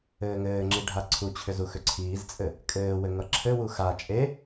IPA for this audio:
ɘː ŋ ɘː ŋ͡ǁ i ɖʱ a ǀʰ u t͡ɕʰ ʏ z u x ʏ ǀʰ iː z t͡sʼ ɘ | kʼ ɘː w ɘ ŋ ʌ ǁʰ ɘ w u x a t͡ʃʼ e

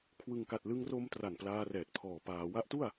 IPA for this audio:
kʰ w ɯ˨˩ ŋ k a˨˩ t̚ l ɯ˧ ŋ r o˧ m t r a˨˩ n p l aː˧ r ɛː˨˩ t̚ pʰ ɔː˨˩ p aː˩˦ w a˦˥ ʔ t u˥˩ a̯

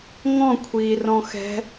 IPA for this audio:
ŋ ɔ̃ kʷʰ iː r ɔ̃ x ɛ̤

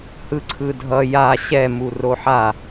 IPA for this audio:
h ɯ ǀʰ ɯ dʱ ʌ j a ɕ ɛ m u r o ħ a

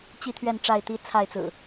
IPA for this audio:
t͡ɕ i˥˨ t̪ʰ ɥ ɛ˥˨ n ʈ͡ʂ a˥˨ ɪ̯ t̪ i˦ t͡sʰ a˥˨ ɪ̯ t͡s ɹ̩˨˩

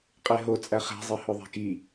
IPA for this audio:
qʼ e ɦ o t͡sʼ æ χ æ̤ zˤ e h o ðˤ æ̤ k i

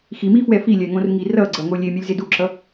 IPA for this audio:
x i m i f w ɛ f i lʲ ɛ ŋ õ r ŋ i r ʌ ɡ͡ǀ ʌ ŋ o lʲ e mʲ ɛ lʲ z e d u ǁ ʌ

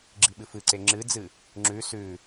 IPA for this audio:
ɡ͡ǁ i ɓ ɨ f ɨ ǀ e ŋ͡ǁ ɨ d͡z ɨ | ŋ͡ǁ ʉ s ʉ

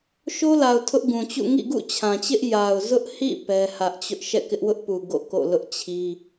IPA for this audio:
ʃ o˦ l a˨ ʊ̯ tʰ ʊ˦ ʔ ɡ ũ˨ t͡ɕ ṵ˦˨ ŋ ḭ˦˨ ɡ ṵ˦˨ t͡ɕʰ ã˨ t͡ɕ ɪ˦ ʔ j a˨ ʊ̯ z ʊ˦ ʔ h ḭ˦˨ p ɛ˦ h ä˦ ʔ t͡ɕ ʊ˦ ʔ ʃ ɛ̰˦˨ k ɪ˦ ʔ w ʊ˦ ʔ p u˨ ɡ o̰˦˨ k o̰˦˨ l ʊ˦ ʔ t͡ɕʰ i˦

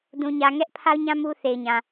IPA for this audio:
d ũ˨ ɲ ä˨ ŋ ɛ˦ ʔ pʰ a˦ ʊ̯ ɲ ã˦ m u˦ θ e˨ ɪ̯ ɲ ã˨

